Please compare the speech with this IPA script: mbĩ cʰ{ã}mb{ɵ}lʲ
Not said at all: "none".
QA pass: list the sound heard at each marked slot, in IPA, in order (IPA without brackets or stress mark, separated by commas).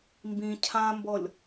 ã, ɔ